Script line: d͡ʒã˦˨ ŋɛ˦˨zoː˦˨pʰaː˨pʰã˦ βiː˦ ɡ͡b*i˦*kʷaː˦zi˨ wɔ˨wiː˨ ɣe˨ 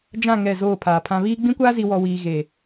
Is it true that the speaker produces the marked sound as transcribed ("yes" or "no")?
no